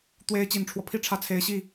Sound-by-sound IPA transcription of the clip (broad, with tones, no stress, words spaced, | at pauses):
t̪we˧˥ɪ̯ t͡ɕi˨˩nʈ͡ʂʰwɔ˦pʰi˥˧ʈ͡ʂʰä˥˩ t͡sʰe˧˥ɪ̯ɕi˥˩